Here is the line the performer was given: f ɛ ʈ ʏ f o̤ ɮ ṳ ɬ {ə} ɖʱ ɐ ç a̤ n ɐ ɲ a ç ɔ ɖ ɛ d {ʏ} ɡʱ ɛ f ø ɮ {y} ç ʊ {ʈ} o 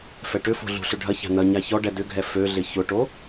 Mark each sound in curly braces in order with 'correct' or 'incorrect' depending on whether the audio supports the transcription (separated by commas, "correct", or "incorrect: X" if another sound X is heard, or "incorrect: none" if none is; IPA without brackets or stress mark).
incorrect: ʏ, correct, incorrect: ɪ, correct